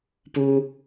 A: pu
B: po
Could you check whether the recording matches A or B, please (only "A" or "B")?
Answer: A